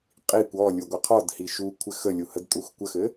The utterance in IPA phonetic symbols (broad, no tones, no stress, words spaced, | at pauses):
qʼikʷ ɔ lʲuɡʷəqʰɔd hiʃukʷʰɘ xəlʲuhədtʼux kʷəxɘ